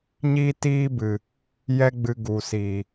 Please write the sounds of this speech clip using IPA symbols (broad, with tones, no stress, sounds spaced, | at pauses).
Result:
ɲ iː˦ t iː˦ b ɨ˨ | j ɛ˦ ɡ͡b ɨ˧ ɡ u˨ s iː˨